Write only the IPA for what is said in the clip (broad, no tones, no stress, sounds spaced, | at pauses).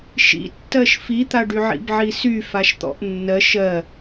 ʃ ḭ tː ɜ ʃ f i t̪ a ɖ y ʕ ḭ b ʕ i s y f a ʃ t̪ ɔ̰ ʔ nː ɜ ʃ ɜ